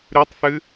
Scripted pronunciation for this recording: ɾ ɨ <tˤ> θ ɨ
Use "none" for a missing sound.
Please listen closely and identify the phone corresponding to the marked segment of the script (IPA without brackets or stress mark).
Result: tˤ